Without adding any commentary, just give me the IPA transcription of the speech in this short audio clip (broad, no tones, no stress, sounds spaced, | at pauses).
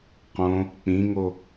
q õ | k͡p ĩ ŋ o